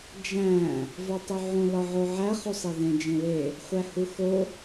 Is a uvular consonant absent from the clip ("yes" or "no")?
no